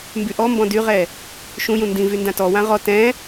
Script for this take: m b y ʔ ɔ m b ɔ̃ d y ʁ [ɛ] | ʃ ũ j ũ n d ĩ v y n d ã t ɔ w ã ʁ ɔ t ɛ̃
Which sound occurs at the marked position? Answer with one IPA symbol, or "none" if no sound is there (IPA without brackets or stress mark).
ɛ